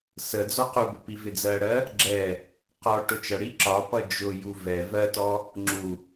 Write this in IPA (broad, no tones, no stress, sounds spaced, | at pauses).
s ə d͡z ɔ q u b ʊ p i v ɪ d͡z ɜ ɽ ɜ | ɡ͡ǁ ɛ | q ɔ ʈ ʊ t͡ʃ ʌ ɽ i ǁ ɒ p ʌ d͡ʒ ʊ j u v ɛ v ɜ t ɔ | ŋ͡ǁ u